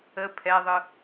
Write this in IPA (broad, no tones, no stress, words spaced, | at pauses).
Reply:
ə pʰɛðˤɯ